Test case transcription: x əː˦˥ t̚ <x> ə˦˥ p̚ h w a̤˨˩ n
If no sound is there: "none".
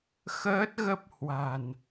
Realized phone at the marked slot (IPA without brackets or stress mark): ɣ